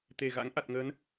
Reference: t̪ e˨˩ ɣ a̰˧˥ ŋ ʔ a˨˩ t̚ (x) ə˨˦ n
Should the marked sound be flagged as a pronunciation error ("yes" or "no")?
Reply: yes